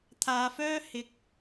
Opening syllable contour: low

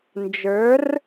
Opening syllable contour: rising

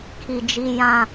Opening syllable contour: low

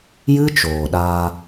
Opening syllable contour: high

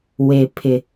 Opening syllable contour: low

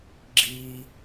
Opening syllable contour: low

